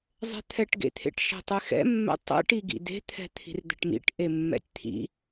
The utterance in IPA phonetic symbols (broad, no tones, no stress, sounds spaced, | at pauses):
zˤ ɛ̤ t̪ʰ ɛ ʈ ɡ ḛ t̪ʰ ḛ ʈ ʃ ɛ̤ tˤ e x ɛ̰ mː ɛ̰ tˤ ɛ̰ ʈ i ɡ ḭ d e̤ t̪ʰ ɛ̤ t̪ʰ i̤ r d̪ ɛ̤ ʈ m ḭ ʈ ʔ e mː ɛ̰ tʲ t̪ʰ ḭ